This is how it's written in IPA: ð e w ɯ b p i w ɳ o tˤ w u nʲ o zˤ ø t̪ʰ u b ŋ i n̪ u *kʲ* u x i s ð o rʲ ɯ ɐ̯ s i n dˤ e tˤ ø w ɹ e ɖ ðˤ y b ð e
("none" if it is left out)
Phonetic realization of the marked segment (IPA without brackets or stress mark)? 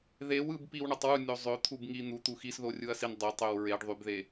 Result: t̪